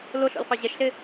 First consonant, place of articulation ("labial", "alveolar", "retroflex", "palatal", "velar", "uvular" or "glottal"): alveolar